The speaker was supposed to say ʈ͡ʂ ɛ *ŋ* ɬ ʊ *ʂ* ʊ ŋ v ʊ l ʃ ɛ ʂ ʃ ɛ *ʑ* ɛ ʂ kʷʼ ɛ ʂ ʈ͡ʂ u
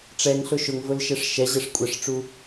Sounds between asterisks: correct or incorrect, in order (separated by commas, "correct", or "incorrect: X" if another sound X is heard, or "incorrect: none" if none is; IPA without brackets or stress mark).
correct, incorrect: ʃ, correct